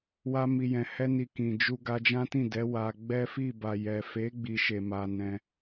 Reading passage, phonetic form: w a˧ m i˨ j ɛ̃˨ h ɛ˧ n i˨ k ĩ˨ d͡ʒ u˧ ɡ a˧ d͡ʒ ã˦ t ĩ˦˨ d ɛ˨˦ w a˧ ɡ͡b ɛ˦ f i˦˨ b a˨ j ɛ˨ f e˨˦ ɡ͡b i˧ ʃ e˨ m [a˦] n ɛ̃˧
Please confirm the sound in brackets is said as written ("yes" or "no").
no